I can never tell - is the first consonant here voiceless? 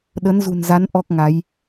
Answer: no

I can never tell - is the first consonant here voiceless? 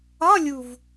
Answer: no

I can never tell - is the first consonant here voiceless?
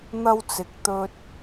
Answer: no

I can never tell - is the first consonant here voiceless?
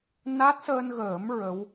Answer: no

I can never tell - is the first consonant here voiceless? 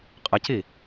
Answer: yes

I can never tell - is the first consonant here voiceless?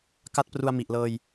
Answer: yes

